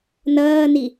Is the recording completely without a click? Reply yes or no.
yes